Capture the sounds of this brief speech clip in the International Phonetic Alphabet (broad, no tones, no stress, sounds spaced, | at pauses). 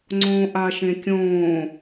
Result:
ŋ͡ǀ õː ʔ a ʃ ẽ kʲ õː